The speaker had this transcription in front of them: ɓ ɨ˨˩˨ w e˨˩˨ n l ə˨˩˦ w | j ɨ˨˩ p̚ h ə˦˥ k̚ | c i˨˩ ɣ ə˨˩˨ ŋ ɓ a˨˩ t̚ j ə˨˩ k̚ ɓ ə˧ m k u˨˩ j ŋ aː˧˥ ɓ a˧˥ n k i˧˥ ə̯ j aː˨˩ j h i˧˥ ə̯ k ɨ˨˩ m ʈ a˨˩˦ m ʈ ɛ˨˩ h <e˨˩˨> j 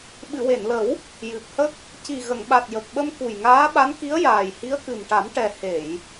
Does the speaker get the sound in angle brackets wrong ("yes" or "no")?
no